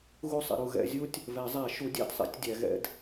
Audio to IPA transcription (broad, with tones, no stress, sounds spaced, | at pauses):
ɣ u˥˨ sˤ ɛ̰˨ ɾ u˨ ɣ ɛ̰˨˩˦ zʲ u˦ tʲ | v ɛ˨˩˦ zˤ æ˨˩˦ ʃ u˩˥ dʲ æ̰˥˨ d sˤ ɛ̰˩˥ tʲ dʲ æ˨ ɣ ɛ̰˦ d